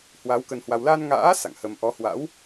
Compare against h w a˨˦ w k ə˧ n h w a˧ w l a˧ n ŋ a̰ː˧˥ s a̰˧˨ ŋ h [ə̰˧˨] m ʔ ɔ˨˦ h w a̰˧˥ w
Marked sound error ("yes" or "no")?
yes